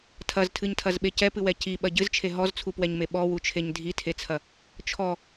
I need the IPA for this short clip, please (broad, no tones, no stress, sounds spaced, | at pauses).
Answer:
tʰ ɐ z tʰ ɨ ɲ tʰ ɐ z ɓ e c ɛ p ɨ w ɛ c i ɓ ɐ ɟ ɨ z t͡ʃʰ e ɦ ɔ z t͡sʰ u p w ɛ ɲ m e ɓ ɔ w u t͡ʃʰ e ɲ dʱ i tʰ e t͡sʰ ɐ | t͡ʃʰ ɔ